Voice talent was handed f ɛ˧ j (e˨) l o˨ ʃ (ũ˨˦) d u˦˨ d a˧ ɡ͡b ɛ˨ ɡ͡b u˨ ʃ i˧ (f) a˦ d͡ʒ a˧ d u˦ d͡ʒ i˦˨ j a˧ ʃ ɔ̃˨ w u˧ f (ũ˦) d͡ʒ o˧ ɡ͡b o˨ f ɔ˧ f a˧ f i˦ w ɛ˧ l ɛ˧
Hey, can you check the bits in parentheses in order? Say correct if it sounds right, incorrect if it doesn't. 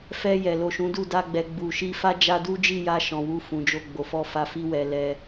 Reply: incorrect: ɛ˨, correct, correct, incorrect: ũ˨

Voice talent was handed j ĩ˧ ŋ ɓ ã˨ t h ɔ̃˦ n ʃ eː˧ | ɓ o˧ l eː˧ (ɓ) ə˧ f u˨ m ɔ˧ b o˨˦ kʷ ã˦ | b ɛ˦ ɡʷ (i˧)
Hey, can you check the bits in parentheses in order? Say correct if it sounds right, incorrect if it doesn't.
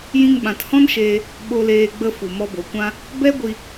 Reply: incorrect: ɡ͡b, correct

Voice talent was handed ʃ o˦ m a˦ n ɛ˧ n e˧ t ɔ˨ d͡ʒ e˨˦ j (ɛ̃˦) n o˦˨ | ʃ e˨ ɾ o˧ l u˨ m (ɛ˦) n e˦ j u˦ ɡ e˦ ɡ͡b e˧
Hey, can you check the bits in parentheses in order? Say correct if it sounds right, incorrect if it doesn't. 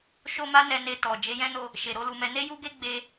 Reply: correct, incorrect: ɛ˧

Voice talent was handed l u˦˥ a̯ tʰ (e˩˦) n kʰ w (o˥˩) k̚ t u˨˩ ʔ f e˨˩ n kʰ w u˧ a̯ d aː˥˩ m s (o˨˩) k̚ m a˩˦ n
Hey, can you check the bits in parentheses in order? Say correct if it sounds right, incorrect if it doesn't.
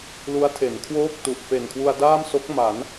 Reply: correct, incorrect: oː˥˩, incorrect: o˦˥

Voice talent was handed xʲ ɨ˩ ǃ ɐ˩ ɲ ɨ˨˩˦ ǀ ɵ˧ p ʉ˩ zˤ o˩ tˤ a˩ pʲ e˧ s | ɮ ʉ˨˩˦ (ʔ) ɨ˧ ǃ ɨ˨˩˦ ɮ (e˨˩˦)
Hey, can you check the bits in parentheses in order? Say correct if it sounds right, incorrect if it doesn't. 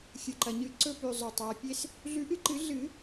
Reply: correct, incorrect: ɨ˨˩˦

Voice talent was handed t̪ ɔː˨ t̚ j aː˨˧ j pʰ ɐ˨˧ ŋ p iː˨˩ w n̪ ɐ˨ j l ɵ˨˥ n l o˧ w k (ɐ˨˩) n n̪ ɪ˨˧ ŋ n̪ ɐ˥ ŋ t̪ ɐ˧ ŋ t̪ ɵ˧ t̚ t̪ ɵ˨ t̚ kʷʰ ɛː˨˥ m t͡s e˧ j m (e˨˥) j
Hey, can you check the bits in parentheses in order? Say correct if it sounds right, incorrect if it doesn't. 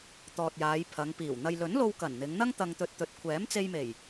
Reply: correct, incorrect: e˨˩

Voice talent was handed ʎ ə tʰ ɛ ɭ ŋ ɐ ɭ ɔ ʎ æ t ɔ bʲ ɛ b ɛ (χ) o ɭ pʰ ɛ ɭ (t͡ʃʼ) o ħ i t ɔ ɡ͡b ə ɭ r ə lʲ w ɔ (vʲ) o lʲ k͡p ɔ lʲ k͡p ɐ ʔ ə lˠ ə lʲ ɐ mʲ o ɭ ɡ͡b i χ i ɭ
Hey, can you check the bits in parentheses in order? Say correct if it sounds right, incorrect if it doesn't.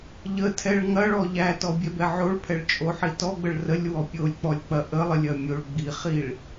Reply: incorrect: ʕ, correct, incorrect: pʲ

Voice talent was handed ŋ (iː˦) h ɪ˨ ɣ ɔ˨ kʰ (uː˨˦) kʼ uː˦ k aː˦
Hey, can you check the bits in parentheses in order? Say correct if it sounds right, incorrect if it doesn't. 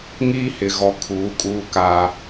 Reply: correct, correct

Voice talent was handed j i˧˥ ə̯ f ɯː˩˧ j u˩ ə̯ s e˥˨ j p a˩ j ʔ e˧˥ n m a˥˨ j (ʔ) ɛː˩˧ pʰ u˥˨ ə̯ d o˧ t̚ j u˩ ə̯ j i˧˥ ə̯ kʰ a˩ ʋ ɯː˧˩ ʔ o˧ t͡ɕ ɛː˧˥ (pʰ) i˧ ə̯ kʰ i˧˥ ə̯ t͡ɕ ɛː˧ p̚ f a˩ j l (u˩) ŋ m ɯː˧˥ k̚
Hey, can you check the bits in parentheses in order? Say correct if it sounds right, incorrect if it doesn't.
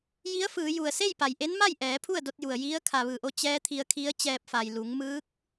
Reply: correct, incorrect: t̪ʰ, incorrect: u˩˧

